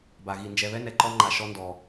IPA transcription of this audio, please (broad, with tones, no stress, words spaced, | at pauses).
ba˨ɣi˨ nd͡ʒɛ˨βɛ˦ nɛ˨ǃɔ˦ŋ͡ǃa˨ ʃɔ˦ndɔ˨